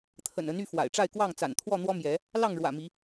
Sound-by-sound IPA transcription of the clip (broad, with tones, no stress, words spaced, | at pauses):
t̪ʰə̰˨˩nə˨˦n y˥˨fwa̰˨˩ɪ̯ʈ͡ʂa˥˨ɪ̯kwɑ˥˨ŋ t͡sa̰˨˩nt̪ʰwɔ˥˨n̪wɔ˦mjɛ˨˦ | lɑ˥˨ŋɻwä̰˨˩mi˨˦